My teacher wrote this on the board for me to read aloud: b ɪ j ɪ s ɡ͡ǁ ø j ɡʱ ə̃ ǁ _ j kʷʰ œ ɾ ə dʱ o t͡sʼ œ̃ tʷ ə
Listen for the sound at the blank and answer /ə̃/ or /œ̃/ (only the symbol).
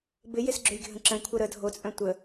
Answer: ə̃